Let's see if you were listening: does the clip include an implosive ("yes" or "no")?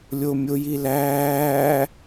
no